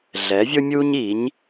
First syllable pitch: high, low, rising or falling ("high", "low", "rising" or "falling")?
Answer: rising